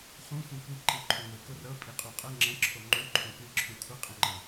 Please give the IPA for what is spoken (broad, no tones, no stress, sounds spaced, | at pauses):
χ ũ xʷ ĩ kʷ i ǃ ɨ ǃʰ ũ ŋʷ ɨ k o r ɤ pʼ i qʼ u qʼ ɤ ŋ͡ǁ ə̃ ǁʰ o ŋ͡ǃ u ǃʰ õ k ɨ ǁʰ ũ kʷʰ ə qʼ ə̃ ŋ͡ǃ ɤ